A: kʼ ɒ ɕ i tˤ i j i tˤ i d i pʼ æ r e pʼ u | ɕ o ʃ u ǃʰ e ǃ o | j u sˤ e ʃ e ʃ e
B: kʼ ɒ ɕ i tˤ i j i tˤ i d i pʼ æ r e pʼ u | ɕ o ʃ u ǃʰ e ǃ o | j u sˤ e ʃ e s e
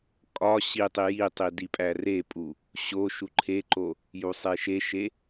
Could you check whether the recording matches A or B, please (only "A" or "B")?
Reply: A